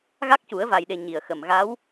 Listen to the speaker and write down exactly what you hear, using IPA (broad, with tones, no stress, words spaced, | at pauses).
ɣa˦˥k̚cu˨˩˦ə̯ va˨˩jɗe˨˩ ɲi˨˩ə̯xə˨˩m ɣa˧˥w